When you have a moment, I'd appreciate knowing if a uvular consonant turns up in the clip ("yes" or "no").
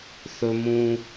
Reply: no